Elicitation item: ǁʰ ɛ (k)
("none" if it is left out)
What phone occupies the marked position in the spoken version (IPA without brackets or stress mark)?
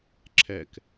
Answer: k